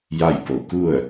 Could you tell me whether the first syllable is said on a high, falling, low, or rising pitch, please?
falling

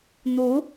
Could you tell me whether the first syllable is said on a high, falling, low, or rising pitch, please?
rising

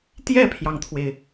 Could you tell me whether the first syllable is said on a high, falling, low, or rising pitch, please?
falling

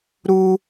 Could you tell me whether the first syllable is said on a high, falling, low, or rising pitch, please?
high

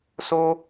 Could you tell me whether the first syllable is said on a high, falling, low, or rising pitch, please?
high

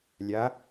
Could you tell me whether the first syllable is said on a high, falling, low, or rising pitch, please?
rising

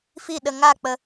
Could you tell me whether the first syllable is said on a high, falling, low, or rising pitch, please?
falling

